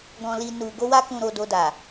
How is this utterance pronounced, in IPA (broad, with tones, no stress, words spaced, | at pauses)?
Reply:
ɡɔ̃˧li˧ nu˧ ɡo˦wa˦kũ˧ɾo˧ do˧da˨